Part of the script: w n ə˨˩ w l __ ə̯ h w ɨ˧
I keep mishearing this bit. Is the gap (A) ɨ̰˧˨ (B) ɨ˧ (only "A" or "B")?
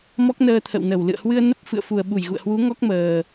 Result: A